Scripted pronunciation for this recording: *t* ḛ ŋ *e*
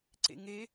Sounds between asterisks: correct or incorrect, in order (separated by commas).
incorrect, correct